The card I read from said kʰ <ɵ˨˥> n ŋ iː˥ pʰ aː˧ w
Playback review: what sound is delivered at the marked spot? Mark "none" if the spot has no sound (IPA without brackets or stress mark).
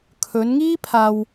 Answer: ɵ˨˧